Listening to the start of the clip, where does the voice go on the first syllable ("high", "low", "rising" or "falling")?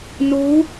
rising